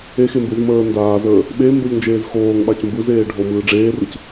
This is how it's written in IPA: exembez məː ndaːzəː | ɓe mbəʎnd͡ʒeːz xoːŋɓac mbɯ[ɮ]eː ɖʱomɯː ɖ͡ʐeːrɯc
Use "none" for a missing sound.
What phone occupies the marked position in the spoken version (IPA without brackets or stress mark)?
z